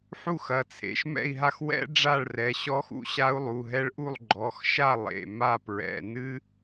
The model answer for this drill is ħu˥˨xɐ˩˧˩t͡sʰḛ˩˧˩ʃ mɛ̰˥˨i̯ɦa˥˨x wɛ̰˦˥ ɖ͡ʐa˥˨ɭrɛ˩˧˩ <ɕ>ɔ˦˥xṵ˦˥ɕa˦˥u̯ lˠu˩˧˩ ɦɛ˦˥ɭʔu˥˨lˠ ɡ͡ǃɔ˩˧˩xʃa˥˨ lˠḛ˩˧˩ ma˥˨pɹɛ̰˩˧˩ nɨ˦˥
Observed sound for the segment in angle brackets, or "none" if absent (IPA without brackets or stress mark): ɕ